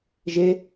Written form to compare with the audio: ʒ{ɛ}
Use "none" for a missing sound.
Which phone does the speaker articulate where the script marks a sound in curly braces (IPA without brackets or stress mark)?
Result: e